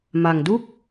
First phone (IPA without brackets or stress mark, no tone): m